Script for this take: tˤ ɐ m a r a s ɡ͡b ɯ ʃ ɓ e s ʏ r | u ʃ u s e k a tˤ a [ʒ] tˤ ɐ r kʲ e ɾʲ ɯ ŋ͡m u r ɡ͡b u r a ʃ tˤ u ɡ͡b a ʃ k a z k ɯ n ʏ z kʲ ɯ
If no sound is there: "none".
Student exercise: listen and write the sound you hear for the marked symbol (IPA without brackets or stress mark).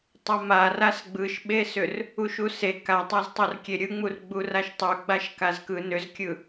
z